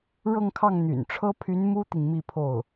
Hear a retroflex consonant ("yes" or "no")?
yes